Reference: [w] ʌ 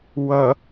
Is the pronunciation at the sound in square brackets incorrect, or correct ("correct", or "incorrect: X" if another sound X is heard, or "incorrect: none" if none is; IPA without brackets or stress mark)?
correct